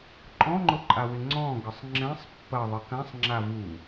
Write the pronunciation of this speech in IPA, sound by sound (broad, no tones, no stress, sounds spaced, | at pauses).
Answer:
ǃʼ ɔ̃ ŋ͡ǃ ʊ ǃʼ a w ɪ ŋ͡ǀ ɔ̃ ɡ ə sˤ ŋ͡ǁ ɛ̃ sˤ pː ɐ ðˤ ə k ã sˤ ŋ͡ǁ a v u